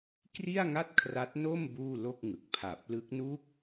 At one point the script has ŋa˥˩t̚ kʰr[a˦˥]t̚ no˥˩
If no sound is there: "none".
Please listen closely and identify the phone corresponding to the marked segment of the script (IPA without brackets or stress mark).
a˦˥